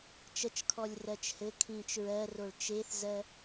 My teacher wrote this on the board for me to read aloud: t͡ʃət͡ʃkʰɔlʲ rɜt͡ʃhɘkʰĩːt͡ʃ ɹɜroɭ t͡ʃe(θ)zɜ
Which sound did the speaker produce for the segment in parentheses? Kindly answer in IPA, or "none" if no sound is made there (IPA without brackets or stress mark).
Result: θ